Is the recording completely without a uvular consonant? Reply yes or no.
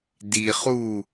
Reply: no